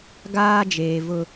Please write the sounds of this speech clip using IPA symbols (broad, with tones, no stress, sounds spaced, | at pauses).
ɡ aː˦ d͡ʒ eː˨ v ʊ˦